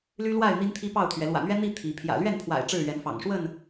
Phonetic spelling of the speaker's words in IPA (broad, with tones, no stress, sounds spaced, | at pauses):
l y˦ l w a˥˨ ɪ̯ n̪ i˦ n t̪ʰ i˦ p ɑ˥˨ ʊ̯ t̪ʰ ɥ ɛ˨˦ l w ä̰˨˩ n̪ ɥ ɛ˦ n̪ i˥˨ t̪ʰ i˨˦ pʰ j ä̰˨˩ l ɥ ɛ˥˨ n pʰ w a̰˨˩ ɪ̯ ʈ͡ʂ ɻ̩˥˨ ɥ ɛ˨˦ n f ɑ̰˨˩ ŋ ʂ w ə˥˨ n